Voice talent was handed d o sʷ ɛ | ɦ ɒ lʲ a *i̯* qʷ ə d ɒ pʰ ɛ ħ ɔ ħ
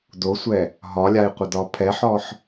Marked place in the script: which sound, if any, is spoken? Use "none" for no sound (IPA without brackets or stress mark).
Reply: i̯